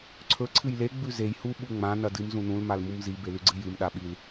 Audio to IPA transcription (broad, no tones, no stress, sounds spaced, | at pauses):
ǀʰ ɵ ǀʰ ɨ j l e ɡ͡b ʉ z e j h u ɓ u ŋ͡m ã n ɐ d ɨ m z ũ n ũ l m a l m u m z i b e l ʉ ɡ͡ǀ ɨ j ɨ m ɗ a ɓ i l